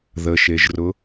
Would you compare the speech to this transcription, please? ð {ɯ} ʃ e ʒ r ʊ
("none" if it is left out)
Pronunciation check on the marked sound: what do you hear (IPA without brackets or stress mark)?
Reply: ə